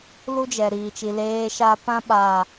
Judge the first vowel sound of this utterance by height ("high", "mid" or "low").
high